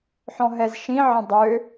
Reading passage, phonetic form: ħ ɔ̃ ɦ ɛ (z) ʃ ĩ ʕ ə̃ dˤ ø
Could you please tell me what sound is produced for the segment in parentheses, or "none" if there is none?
z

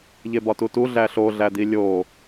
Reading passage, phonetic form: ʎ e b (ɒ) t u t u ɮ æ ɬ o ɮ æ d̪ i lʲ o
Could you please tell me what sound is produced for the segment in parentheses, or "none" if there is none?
ɒ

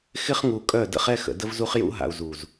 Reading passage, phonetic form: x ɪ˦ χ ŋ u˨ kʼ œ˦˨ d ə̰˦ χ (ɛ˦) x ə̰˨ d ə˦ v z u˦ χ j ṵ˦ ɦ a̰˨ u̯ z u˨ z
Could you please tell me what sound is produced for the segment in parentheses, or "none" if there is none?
ɛ˦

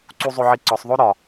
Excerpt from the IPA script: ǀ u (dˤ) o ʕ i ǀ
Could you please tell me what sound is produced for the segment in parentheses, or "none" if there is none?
zˤ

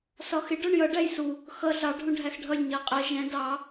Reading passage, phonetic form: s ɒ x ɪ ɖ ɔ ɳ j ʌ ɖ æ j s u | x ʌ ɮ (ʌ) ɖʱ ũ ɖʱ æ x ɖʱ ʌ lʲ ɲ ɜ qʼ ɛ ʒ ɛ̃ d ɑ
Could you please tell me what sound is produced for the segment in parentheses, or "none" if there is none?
ɑ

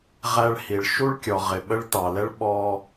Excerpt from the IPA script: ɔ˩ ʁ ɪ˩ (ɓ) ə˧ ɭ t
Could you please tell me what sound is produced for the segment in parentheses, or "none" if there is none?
ɓ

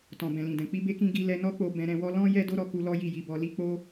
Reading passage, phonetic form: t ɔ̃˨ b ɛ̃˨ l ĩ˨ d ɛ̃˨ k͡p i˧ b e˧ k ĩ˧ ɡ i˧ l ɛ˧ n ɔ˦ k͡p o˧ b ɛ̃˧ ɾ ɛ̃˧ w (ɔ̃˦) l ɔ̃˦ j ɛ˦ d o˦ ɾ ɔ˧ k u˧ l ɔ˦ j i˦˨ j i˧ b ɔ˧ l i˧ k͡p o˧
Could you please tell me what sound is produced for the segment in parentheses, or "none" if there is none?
ɔ˦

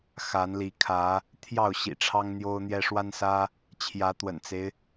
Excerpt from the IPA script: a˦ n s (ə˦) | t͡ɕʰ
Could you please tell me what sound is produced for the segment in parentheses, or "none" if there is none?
ä˦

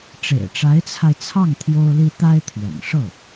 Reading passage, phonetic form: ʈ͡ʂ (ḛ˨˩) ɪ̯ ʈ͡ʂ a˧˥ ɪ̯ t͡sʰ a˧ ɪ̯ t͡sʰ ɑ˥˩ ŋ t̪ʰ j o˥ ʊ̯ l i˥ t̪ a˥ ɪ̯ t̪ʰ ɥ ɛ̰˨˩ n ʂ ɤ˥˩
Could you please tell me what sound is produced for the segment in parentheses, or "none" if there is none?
ḛ˨˩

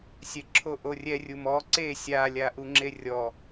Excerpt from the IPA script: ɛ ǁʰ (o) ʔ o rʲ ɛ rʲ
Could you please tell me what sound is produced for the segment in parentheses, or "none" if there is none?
o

